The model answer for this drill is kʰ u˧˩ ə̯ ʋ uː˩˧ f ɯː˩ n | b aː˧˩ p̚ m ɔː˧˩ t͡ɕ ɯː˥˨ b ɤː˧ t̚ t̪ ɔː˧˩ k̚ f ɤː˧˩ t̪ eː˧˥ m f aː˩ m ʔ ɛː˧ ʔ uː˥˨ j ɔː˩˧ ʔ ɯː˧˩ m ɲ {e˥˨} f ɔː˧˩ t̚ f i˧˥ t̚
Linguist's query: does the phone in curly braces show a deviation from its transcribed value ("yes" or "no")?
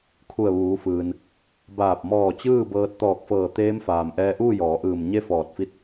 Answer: no